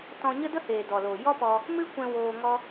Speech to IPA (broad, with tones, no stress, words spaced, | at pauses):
tɔ̃˧ɲə˦də˦heː˨ dɔ˨loː˨ jɔ˦pɔ˧ | mɨ˦kʷɛ̃˧ woː˧ŋɔ˦